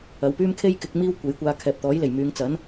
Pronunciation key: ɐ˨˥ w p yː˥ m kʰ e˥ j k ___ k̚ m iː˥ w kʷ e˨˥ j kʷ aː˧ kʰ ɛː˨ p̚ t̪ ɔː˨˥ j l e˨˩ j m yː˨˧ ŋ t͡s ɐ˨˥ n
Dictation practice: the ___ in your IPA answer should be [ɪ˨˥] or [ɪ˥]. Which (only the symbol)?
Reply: ɪ˨˥